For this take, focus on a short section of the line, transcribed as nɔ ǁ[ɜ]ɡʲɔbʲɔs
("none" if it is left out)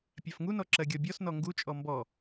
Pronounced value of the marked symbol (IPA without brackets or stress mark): ɜ